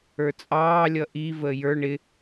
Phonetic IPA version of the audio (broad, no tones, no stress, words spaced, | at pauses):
ə˞t͡sʼɑːlʲʌ ʔi vəːjə˞ ɳɪ